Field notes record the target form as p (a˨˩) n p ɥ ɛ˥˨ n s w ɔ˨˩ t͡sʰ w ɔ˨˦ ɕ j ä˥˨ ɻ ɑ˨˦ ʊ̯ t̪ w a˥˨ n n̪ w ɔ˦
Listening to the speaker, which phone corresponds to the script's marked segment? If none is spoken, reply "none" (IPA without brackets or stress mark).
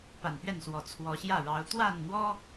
a˨˩